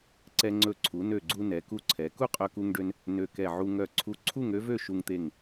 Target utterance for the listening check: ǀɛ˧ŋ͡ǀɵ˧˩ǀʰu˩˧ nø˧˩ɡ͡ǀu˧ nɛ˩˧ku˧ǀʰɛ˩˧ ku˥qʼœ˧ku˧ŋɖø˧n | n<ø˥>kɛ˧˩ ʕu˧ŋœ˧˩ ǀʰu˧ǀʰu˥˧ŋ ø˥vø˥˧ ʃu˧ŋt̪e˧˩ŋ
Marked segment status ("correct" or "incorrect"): incorrect